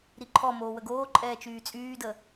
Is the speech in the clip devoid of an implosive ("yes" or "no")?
yes